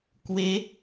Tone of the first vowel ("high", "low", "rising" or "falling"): rising